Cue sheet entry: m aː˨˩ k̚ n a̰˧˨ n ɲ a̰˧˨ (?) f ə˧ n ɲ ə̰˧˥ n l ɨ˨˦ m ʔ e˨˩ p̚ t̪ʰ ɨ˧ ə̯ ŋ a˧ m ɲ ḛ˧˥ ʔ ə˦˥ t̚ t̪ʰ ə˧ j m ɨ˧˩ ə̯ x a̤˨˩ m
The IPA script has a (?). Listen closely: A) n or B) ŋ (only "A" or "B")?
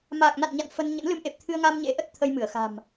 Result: A